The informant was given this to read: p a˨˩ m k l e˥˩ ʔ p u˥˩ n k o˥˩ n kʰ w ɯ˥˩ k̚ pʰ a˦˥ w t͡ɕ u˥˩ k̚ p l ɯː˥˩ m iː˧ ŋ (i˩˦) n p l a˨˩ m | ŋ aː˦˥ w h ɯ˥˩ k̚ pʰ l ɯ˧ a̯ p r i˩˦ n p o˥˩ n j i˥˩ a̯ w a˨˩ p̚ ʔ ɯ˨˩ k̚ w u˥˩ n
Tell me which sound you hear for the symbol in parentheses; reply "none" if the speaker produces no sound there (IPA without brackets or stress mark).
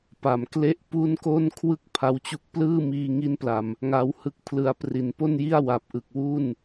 i˦˥